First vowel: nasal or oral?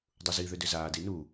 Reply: oral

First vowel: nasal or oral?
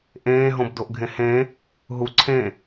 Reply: nasal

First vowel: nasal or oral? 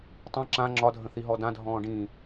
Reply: nasal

